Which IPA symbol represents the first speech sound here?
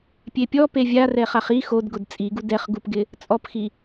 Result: pʲ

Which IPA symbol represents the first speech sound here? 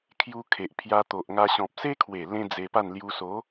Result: kʰ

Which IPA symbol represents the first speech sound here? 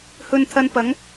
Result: h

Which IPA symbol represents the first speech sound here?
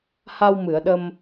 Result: h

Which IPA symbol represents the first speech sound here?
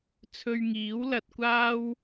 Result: t͡sʰ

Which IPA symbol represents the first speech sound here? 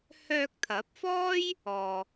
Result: h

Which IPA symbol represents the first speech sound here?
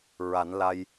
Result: ɹ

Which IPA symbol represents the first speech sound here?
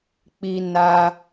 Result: k͡p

